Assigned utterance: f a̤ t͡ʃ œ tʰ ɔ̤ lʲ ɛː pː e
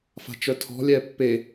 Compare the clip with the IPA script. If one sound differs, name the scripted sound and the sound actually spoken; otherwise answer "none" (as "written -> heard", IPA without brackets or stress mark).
none